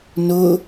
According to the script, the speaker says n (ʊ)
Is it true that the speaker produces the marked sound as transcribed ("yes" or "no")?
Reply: yes